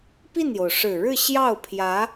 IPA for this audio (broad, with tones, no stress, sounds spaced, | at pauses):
p i˥˩ n j o˩ ʊ̯ ʂ ɻ̩˨˩ ɻ ɻ̩˥˧ ɕ j ɑ˥˩ ʊ̯ pʰ j ä˧˥